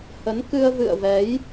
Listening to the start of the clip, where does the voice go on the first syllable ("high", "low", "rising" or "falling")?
rising